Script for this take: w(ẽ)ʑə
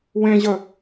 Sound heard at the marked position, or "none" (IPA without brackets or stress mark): ẽ